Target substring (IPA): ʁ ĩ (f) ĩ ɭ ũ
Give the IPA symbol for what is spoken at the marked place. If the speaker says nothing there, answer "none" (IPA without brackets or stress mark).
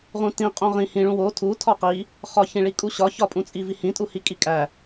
h